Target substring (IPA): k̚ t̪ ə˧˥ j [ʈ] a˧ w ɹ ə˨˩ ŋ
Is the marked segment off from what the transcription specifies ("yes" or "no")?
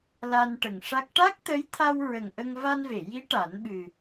yes